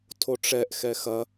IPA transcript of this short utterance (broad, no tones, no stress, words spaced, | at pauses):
tʰoʈ͡ʂɛʔ xɛxɐ